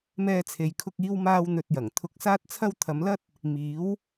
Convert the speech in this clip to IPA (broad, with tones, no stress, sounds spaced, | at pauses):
m ɛː˥ t͡sʰ e˧ j kʰ ʊ˥ k̚ iː˥ w m aː˥ w n̪ ɵ˧ t̚ j ɐ˨˩ ŋ t̪ʰ ʊ˧ k̚ s aː˥ t̚ t͡sʰ ɐ˥ w t̪ʰ ɐ˨˧ m l ɐ˥ t̚ | m iː˨˥ w